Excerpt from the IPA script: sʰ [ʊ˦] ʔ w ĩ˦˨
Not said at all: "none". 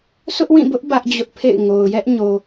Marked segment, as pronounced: ʊ˦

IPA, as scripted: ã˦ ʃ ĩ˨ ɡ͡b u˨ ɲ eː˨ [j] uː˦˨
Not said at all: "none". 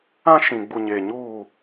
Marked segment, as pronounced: ɲ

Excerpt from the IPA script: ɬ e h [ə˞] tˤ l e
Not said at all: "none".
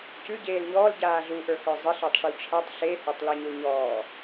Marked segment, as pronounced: ə˞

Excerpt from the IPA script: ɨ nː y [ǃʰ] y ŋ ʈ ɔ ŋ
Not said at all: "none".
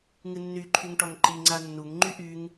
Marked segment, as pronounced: ǃʰ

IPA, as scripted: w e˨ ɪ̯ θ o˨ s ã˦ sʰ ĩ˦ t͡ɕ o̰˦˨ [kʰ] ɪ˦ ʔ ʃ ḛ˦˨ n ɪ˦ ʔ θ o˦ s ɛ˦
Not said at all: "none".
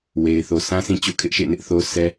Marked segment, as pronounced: kʰ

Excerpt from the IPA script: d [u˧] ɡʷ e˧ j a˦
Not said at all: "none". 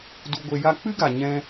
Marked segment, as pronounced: u˧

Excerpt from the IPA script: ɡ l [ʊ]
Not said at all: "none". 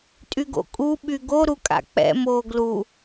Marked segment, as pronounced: u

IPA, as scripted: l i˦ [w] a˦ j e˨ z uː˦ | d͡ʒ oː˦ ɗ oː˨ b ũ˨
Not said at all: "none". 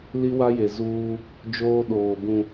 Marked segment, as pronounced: w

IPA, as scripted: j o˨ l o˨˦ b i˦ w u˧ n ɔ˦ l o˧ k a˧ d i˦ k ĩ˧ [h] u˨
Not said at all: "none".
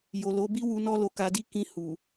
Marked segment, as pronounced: h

